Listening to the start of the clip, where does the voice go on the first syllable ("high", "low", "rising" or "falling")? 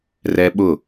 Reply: high